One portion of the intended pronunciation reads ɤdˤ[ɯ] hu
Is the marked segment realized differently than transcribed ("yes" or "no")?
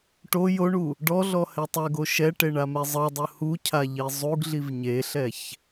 no